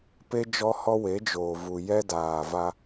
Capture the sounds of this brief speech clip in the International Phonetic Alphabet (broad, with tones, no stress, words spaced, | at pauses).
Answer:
pe˦ d͡ʒɔ˦hɔ˦ we˨˦ d͡ʒoː˨vu˨ jɛ˦daː˨va˦